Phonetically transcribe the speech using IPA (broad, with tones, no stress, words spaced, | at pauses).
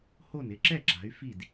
ho˥˩nɪ˥˩ ǁɛ˥˩ǁa̤˩˧y̯ fi˥˩d